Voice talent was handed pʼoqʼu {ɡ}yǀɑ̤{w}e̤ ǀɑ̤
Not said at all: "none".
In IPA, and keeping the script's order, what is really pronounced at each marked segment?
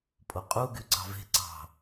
ɡ, v

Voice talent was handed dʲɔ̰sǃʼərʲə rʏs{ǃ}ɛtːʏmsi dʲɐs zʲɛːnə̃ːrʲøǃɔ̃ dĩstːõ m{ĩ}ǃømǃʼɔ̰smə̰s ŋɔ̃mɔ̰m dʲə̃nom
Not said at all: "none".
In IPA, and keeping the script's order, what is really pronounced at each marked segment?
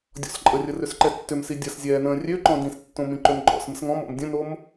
ǃ, ĩ

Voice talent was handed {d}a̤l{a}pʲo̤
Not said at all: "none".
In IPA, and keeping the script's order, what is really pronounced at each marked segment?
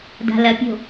d, ɐ

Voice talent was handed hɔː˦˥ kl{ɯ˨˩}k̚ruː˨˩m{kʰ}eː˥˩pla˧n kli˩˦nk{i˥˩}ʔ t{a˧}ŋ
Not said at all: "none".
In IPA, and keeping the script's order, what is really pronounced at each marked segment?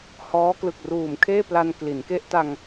ɯ˨˩, kʰ, e˥˩, a˧

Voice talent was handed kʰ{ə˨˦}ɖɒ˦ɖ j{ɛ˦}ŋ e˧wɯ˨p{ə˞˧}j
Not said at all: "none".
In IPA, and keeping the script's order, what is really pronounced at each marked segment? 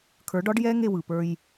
ə˞˨˦, ɛ˦, ə˞˧

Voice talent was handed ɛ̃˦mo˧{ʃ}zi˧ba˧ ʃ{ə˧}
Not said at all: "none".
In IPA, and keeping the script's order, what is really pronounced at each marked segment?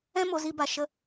none, ə˦

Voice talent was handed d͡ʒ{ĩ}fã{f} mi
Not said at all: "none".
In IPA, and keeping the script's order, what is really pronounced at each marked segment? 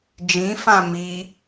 ĩ, none

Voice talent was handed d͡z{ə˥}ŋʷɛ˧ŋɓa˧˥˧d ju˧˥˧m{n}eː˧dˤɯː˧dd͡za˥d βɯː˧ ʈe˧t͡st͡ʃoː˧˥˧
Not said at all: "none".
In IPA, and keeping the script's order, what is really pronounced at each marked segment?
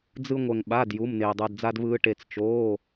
ɯ˥, n

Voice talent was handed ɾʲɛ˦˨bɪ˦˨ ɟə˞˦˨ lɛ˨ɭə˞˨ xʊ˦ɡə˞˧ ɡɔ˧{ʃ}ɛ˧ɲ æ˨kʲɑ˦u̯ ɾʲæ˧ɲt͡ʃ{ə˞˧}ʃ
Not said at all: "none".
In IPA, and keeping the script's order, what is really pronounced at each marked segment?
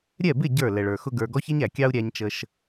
ç, ə˧

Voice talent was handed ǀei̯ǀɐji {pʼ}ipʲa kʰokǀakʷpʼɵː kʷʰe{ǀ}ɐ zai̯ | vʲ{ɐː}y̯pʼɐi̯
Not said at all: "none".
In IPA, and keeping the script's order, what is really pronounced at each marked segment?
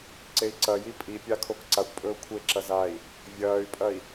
pʼ, ǁ, ɐː

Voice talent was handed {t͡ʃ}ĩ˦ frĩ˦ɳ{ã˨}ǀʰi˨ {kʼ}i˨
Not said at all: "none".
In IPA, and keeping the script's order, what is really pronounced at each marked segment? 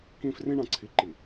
k, ã˨, ǃ

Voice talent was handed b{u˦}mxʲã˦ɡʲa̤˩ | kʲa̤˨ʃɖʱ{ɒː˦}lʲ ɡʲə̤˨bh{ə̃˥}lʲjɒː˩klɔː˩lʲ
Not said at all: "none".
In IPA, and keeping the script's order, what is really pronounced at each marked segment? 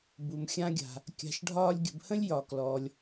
u˩, ɒː˦, ə̃˥

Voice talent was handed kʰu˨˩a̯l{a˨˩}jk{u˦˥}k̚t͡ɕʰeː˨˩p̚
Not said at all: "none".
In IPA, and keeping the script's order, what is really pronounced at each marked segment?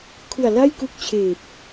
a˥˩, u˦˥

